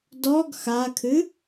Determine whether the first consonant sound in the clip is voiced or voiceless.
voiced